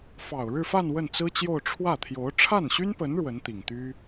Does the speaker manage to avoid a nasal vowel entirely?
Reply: yes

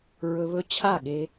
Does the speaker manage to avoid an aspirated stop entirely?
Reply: no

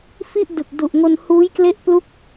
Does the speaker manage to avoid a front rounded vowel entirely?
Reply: yes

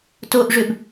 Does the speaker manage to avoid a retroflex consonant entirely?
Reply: no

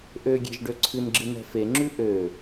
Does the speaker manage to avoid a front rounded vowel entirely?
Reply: no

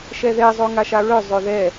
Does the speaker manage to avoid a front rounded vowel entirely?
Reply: no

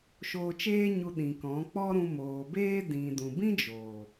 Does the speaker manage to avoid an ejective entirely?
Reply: yes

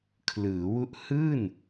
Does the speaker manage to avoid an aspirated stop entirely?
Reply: no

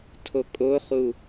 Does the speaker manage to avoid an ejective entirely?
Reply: no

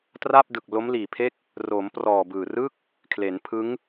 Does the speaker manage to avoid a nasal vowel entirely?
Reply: yes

